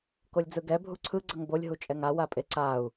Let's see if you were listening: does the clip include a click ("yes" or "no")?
yes